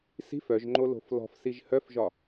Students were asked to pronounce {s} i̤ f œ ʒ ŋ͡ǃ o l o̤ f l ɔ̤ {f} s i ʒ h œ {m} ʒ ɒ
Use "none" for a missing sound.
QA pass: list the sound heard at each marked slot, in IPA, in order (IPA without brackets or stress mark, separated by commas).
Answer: s, f, f